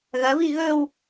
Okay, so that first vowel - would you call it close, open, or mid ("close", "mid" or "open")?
open